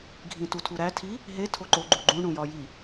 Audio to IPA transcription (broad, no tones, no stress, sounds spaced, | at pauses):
ɡʱ ĩ t u tʰ u ɾ æ tʰ i | ɦ e tʰ o ǃ o ɡ͡ǃ u ɡ͡ǃ ũ ɳ ũ j ɒ j i